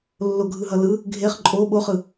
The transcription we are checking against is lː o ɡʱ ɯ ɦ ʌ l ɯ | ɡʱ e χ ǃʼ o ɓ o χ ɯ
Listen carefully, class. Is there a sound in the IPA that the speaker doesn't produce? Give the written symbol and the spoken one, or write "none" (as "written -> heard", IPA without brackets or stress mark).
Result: none